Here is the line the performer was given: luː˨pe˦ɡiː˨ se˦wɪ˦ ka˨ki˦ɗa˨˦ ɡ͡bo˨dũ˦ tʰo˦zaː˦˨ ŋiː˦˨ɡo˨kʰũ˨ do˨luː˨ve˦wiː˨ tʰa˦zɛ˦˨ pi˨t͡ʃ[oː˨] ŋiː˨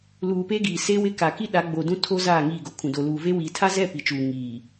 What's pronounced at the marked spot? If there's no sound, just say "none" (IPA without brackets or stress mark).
uː˨